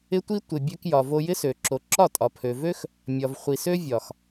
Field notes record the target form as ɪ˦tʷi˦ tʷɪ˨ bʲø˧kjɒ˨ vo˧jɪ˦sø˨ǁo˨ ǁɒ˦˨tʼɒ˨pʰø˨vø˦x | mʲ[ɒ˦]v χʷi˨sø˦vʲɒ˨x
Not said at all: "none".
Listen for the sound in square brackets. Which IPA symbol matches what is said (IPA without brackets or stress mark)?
ɒ˨